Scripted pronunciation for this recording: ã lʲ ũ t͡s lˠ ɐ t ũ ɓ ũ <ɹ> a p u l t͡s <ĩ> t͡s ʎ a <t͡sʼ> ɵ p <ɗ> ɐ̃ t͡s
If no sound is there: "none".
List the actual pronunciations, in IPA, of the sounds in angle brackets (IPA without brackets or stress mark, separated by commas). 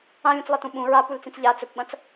ɹ, ĩ, t͡s, ɓ